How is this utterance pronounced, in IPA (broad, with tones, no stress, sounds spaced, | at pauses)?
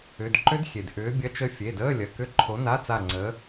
ʏ˩˧˩ d ǃ ʏ˦˥ d xʲ e˩ d ʔ ʏː˨˥ bʲ ɐ˧˥˧ t͡ʃ ə˦˥ fʲ e˩˧˩ d əː˧˥˧ lʲ ɐ˩˧˩ k ʏ˧˥˧ ǃʰ o˨˥ n a˧˥˧ t͡s a˦˨ ŋ͡ǀ əː˨˥